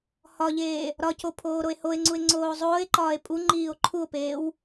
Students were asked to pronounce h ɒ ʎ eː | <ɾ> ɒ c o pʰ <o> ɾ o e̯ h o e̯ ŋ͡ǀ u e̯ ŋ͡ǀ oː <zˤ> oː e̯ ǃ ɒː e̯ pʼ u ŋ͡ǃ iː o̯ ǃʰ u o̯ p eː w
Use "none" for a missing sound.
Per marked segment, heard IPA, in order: ɾ, oː, zˤ

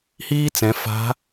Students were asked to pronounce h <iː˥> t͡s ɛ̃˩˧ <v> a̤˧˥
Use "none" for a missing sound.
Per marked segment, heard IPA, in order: iː˥, f

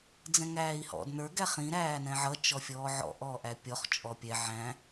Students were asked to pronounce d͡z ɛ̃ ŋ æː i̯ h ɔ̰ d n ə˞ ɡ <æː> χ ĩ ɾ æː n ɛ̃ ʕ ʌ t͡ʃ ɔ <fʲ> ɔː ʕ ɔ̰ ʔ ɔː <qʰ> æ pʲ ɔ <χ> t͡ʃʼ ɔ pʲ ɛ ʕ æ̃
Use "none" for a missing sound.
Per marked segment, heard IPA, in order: æ, fʲ, ʔ, χ

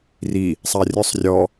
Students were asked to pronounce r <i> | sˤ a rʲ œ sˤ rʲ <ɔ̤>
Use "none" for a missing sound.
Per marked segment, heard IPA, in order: i, ɔ

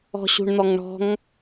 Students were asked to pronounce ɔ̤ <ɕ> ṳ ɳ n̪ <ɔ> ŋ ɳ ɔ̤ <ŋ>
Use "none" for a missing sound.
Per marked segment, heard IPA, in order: ɕ, ɔ, ŋ

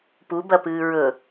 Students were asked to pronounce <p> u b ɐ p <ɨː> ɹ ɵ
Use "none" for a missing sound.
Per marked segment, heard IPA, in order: p, ɨː

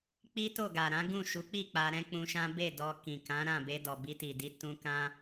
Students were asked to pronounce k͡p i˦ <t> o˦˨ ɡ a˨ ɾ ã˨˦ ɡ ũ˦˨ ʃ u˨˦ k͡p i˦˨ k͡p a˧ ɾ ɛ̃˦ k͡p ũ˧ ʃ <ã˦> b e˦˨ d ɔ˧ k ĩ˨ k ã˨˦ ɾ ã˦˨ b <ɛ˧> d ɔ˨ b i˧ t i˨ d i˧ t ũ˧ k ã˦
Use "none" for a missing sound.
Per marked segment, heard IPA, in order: t, ã˦, e˧

